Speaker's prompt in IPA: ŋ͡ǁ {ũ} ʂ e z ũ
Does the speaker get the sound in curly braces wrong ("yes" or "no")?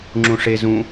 no